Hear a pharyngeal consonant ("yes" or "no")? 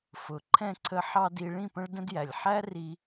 yes